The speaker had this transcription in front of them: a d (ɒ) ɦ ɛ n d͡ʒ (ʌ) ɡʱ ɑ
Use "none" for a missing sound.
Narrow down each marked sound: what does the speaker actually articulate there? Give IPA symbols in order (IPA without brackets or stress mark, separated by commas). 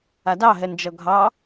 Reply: ɑ, ʌ